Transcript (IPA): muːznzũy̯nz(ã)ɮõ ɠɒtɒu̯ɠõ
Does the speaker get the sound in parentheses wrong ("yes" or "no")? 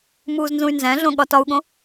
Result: yes